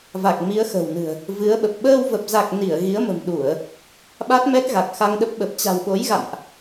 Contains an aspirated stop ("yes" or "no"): no